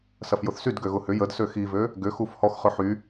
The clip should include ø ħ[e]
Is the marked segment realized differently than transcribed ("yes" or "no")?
yes